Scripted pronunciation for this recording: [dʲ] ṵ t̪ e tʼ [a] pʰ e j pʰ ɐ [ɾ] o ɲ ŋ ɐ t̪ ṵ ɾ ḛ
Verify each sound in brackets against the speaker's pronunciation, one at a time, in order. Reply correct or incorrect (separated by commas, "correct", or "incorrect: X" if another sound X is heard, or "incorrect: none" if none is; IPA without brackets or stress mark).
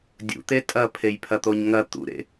correct, incorrect: ɐ, incorrect: t̪